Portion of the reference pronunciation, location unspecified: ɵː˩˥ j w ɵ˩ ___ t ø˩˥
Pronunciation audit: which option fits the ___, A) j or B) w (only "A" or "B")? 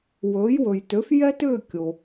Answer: A